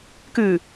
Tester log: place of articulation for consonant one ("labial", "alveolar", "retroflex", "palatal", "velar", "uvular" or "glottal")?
velar